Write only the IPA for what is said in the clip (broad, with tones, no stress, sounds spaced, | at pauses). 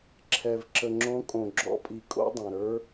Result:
ǁʰ ɛ˩ v ǁ ə˩ ŋ͡ǁ õ˨˦ kʼ õ˩ ɡ͡ǁ ɔ̰˨˦ pʼ i˩ kʼ o̰˨˦ dˤ ɛ̃˩ ɾ ə˞˨˦